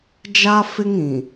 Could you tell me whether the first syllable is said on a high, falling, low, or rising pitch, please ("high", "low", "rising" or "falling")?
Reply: high